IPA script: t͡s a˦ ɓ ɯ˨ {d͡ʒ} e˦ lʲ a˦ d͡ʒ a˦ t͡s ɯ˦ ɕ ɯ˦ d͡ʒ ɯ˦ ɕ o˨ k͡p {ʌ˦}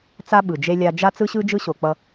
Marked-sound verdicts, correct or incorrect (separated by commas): correct, correct